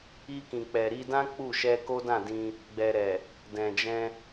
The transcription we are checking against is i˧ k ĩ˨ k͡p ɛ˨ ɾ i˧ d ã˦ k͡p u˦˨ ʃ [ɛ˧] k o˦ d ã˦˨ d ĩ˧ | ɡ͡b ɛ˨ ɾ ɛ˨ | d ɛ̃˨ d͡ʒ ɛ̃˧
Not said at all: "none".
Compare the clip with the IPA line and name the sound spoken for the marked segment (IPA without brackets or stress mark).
ɛ˧